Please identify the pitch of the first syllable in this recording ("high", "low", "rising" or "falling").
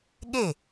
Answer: falling